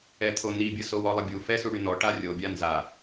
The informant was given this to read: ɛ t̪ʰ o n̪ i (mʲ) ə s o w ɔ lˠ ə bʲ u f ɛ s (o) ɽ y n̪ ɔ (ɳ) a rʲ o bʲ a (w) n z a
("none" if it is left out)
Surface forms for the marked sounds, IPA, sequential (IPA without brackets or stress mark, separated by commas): bʲ, u, ʈ, none